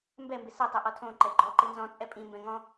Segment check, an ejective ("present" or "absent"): present